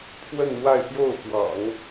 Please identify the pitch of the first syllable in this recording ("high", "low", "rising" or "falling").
falling